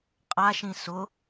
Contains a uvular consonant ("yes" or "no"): yes